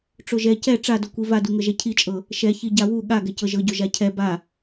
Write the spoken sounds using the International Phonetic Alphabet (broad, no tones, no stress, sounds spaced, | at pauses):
ʈ͡ʂ o ʒ ɛ c ɛ ʈ͡ʂ a d o kʷ i v a d u ŋ ɤ ʒ ɛ cʰ i t͡ʃʼ ɤ | ʃ ɛ ç i ɟ a w u ɠ a ɡ ɛ c ɤ ʒ ɤ ɟ o ʒ a cʰ ɛ b a